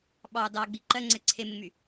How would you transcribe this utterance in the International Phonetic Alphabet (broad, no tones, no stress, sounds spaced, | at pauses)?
ɓ ɑ d ɑ ɡ͡b i ǃ ɜ ŋ͡ǀ ɛ ǀʰ e m ɪ m y